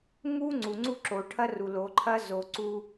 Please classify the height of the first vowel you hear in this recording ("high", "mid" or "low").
high